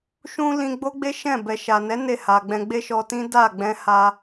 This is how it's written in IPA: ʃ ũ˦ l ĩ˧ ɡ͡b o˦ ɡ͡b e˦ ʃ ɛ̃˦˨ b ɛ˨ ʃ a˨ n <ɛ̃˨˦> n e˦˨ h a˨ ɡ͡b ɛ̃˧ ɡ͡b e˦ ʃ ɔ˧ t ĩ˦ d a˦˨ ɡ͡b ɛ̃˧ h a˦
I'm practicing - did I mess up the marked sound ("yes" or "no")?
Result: yes